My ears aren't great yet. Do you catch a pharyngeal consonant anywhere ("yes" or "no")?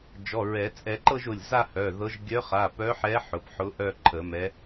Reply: yes